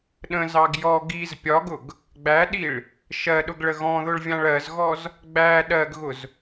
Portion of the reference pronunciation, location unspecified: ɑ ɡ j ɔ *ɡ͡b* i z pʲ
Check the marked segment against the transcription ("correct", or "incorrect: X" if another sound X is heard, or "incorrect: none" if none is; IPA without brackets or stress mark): incorrect: ɡ